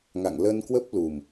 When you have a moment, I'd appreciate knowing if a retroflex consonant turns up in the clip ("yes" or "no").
no